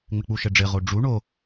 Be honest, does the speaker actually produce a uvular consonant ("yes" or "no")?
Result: yes